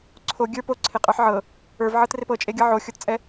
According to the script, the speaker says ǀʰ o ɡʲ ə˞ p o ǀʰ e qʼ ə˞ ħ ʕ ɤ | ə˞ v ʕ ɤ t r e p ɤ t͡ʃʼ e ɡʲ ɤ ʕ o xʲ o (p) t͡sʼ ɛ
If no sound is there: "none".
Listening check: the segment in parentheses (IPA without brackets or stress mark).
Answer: t